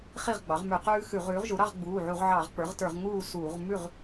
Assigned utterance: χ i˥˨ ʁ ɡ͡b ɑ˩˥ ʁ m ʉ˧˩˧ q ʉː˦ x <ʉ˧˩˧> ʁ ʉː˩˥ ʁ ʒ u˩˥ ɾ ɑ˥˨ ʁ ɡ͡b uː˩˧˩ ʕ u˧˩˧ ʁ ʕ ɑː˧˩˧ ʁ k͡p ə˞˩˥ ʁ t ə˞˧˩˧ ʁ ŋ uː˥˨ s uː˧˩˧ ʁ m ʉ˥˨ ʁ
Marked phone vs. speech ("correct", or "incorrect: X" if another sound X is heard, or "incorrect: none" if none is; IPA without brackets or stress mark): correct